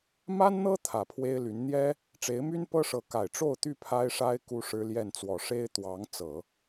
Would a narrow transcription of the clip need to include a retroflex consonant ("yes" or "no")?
yes